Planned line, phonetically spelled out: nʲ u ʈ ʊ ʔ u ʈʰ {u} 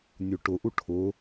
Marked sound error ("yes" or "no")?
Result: yes